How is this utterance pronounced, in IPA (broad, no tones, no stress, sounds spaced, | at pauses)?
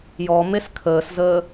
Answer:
j ɔ m e s kʰ əː s z əː